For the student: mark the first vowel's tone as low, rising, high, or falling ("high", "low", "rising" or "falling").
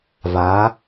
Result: rising